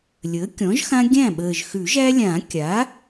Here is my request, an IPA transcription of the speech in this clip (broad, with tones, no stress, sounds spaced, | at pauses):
lʲ əː˩˥ kʲ ɔ̃˩˥ ʒ x ã˦ ɡʲ æ̃˥˩ ɓ əː˨˩ ʒ x ʉ˨˩˦ ʒ æ˦ lʲ ãː˨˩˦ kʲ a˩˥